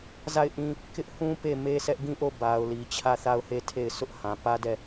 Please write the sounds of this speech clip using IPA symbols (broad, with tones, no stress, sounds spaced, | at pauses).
z a˦˨ ɪ̯ ʔ ĩ˦ | k ɪ˦ ʔ h ũ˦ p e˦˨ m e˦ s ɛ˦ ʔ ɡ ĩ˦˨ ʔ o˦˨ b a˨ ʊ̯ l i˨ t͡ɕʰ ä˦˨ θ a˦˨ ʊ̯ h e˦˨ tʰ e˦˨ ɪ̯ s ʊ˦ ʔ h ã˨ p ä˦ d ɛ˦˨